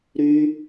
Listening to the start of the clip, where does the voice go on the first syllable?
low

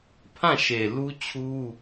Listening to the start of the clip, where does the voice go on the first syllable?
falling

